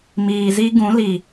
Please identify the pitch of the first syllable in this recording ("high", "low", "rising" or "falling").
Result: low